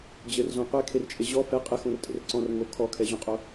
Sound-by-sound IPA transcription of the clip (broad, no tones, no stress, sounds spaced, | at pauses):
d͡ʑ ɘ r z õ qʷ e kʰ e r t͡ʃʼ e ʑ ɔ f ɛ qʼ ɘ x õ r tʼ ḛ r ǀ ɔ̃ r ŋ o kʰ ɔ kʰ ɛ ʑ õ qʼ o